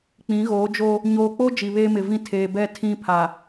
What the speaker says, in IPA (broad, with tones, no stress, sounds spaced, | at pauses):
k͡p ĩ˨˦ ɣ oː˨˦ d͡ʒ oː˦ | ɲ oː˨ k͡p o˦ d͡ʒ i˨ β eː˦ m ɪ˨ v ĩ˦ tʰ eː˨ b ɛ˦˨ tʰ ĩ˦ pʰ a˨